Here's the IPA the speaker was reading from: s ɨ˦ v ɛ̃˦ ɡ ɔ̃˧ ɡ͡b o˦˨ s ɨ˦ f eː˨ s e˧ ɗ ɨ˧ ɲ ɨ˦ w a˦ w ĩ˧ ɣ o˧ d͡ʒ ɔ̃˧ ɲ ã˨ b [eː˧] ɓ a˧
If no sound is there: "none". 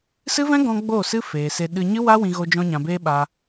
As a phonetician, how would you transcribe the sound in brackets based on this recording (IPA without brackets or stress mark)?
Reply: eː˦